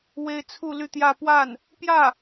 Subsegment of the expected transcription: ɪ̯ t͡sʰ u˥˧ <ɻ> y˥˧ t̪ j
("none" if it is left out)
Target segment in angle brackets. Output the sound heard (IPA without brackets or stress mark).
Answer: l